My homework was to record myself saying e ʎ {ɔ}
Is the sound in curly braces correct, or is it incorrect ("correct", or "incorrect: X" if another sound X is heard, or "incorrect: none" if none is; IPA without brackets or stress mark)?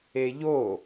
incorrect: o